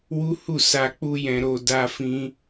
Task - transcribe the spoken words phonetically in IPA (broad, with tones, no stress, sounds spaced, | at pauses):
w u˦ h u˦˨ s a˧ k͡p u˦ j ɛ̃˧ ɾ o˧ d a˧ f ĩ˧